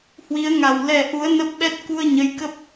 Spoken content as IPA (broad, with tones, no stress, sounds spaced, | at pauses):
h w i˨˦ ə̯ ŋ a˨˩ w l ɛ˨˩ ʔ u˨˦ ə̯ n ə˦˥ p̚ ɓ ɛ˦˥ t̚ k u˧ ə̯ ɲ ə˨˦ j k ə˦˥ p̚